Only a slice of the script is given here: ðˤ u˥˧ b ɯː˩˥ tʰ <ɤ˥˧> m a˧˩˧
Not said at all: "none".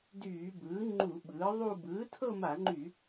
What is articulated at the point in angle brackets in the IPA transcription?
ɤ˥˧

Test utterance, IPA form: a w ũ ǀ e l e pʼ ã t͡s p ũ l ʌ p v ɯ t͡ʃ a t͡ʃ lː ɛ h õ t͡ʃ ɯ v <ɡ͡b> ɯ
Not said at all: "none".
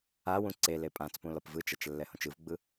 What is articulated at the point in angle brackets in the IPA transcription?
ɡ͡b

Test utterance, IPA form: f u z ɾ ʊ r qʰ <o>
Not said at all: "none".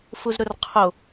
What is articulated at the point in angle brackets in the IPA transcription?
o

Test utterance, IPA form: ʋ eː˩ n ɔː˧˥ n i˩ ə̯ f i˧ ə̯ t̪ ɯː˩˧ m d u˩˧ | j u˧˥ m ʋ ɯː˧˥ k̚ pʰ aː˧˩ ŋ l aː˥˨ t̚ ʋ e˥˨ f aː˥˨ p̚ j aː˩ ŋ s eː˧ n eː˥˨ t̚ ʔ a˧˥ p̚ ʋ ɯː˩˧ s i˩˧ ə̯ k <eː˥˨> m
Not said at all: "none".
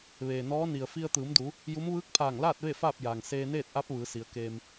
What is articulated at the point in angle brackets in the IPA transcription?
eː˧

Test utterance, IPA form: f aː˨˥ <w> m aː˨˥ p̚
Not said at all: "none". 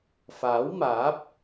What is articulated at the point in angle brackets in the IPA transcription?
w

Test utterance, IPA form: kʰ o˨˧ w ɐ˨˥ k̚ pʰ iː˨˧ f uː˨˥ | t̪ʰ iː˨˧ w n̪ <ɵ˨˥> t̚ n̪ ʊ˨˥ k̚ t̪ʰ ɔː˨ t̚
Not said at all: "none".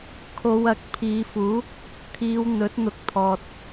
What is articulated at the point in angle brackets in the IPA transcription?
ɵ˨˥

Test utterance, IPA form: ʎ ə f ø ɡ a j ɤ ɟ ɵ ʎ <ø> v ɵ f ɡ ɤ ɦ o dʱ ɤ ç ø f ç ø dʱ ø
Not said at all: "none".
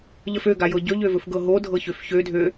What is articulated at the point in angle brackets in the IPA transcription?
ø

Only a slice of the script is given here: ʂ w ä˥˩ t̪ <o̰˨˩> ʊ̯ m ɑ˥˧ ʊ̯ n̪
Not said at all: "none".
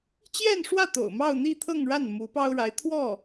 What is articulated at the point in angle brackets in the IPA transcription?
o̰˨˩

